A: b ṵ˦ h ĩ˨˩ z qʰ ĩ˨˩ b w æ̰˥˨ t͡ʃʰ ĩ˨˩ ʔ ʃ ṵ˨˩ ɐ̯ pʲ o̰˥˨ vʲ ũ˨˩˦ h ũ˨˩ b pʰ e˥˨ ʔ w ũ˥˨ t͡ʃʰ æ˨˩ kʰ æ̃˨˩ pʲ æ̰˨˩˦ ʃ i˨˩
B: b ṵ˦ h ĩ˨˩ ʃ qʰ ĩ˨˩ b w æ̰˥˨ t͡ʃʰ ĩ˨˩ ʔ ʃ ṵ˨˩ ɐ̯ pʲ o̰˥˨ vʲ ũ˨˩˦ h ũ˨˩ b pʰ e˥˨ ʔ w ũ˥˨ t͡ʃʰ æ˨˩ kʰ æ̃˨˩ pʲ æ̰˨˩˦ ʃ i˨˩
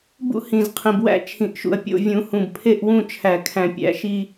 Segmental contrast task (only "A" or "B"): A